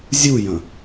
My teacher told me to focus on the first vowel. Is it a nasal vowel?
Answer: no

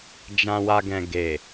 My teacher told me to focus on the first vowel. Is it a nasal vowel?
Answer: yes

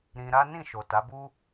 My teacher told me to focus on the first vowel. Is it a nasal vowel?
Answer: yes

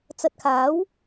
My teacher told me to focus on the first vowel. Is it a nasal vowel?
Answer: no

